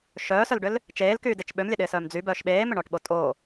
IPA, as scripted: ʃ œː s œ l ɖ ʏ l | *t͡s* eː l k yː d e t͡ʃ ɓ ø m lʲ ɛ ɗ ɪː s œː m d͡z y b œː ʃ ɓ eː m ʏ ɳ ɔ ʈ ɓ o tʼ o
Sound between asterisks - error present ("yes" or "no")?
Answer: yes